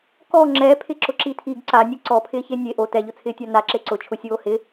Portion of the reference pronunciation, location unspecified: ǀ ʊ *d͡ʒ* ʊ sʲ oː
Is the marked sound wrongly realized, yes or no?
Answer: yes